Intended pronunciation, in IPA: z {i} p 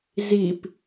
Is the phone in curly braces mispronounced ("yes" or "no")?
no